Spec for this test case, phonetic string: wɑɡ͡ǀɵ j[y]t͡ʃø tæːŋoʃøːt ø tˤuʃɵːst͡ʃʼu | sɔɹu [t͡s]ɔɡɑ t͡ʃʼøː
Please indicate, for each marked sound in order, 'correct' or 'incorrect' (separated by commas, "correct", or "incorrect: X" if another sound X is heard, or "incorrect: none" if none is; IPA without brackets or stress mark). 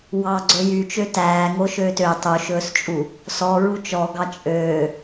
correct, incorrect: t͡ʃ